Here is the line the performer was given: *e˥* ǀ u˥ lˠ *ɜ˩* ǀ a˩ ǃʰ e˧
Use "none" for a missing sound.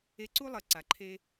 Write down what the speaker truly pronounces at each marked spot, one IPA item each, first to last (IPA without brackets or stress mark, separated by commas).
e˧, ɜ˩